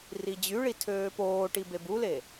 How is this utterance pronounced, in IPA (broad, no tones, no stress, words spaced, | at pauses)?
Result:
rid͡ʑyɭi tʰøːpoːʈi bebule